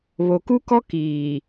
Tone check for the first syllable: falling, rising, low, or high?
low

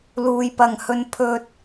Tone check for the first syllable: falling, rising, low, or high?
low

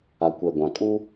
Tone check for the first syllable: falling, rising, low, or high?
low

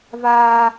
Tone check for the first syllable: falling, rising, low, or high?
high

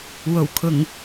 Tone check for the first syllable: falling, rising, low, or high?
low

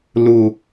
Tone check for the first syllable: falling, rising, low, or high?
low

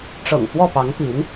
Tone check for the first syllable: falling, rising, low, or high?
low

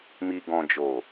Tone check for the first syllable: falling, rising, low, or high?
low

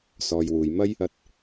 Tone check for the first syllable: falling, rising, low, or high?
low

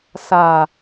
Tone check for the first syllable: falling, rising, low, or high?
low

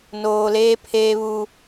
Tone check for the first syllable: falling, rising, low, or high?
low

